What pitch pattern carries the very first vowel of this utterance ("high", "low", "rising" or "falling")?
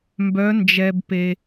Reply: rising